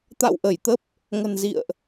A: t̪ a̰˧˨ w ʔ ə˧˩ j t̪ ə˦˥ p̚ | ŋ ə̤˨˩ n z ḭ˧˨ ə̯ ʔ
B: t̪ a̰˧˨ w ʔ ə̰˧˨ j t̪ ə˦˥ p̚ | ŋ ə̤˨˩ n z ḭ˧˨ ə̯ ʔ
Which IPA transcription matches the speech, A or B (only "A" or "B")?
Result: A